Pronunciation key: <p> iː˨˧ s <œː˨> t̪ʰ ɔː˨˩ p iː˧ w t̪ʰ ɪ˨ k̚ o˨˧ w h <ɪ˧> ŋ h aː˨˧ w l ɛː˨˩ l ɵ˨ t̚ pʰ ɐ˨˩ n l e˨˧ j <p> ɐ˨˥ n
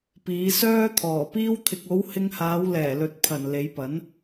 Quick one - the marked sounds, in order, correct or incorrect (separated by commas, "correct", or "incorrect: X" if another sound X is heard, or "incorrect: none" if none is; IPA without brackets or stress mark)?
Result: correct, incorrect: œː˥, correct, correct